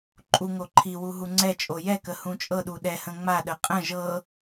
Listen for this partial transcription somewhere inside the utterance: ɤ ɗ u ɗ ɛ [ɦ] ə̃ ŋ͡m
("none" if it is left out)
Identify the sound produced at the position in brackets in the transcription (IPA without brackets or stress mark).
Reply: h